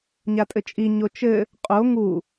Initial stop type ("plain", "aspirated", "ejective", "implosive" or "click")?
ejective